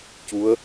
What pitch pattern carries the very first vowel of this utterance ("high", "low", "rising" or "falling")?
rising